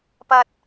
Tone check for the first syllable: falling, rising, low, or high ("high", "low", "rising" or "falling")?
low